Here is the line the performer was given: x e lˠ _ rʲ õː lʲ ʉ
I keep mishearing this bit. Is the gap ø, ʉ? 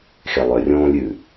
ø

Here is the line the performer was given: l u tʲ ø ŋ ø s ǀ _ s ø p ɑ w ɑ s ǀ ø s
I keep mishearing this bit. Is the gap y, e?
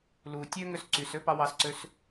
y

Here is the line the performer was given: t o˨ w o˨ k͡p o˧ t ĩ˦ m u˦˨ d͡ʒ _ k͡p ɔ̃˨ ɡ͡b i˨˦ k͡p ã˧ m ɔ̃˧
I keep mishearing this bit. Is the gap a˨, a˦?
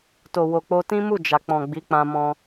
a˨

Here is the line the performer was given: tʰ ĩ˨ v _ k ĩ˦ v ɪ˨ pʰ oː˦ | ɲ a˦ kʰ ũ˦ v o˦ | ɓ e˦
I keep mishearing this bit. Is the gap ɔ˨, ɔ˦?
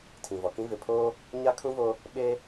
ɔ˨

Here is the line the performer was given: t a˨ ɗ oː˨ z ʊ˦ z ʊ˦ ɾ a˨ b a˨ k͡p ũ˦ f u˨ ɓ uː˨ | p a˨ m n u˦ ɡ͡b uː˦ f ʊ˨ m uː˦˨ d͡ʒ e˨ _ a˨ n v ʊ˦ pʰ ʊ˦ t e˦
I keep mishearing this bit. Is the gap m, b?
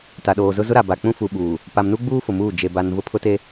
b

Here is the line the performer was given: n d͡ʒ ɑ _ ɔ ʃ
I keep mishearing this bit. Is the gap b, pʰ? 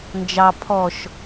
pʰ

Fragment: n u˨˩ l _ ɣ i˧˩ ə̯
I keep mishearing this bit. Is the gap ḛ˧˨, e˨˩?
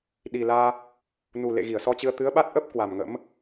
ḛ˧˨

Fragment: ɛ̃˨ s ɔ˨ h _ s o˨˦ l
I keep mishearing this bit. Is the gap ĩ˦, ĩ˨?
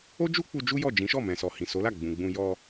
ĩ˨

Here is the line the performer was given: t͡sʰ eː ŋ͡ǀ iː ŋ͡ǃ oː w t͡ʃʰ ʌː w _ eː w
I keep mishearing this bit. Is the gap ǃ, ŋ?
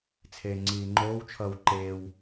ǃ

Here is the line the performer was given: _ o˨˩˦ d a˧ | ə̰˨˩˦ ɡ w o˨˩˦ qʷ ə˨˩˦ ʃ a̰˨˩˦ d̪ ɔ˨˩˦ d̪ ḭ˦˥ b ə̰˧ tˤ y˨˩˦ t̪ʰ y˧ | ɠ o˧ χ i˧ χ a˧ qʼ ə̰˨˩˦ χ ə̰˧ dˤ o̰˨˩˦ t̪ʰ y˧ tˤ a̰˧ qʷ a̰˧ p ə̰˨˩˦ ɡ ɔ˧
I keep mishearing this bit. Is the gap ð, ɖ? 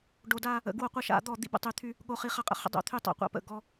ɖ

